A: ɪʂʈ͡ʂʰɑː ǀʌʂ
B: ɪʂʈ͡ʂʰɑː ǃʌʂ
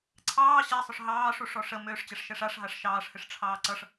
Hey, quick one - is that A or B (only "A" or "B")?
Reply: A